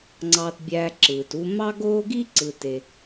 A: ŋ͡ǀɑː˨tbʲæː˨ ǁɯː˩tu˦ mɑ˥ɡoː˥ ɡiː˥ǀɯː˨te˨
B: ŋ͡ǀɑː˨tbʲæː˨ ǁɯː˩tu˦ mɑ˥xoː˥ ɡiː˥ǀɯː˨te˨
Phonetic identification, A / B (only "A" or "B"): A